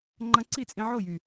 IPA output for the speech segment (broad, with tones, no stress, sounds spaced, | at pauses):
ŋ͡ǃ ɐ̃˧ ǀ i˦˨ t͡sʼ ĩ˧ ʕ o˦˨ j y˨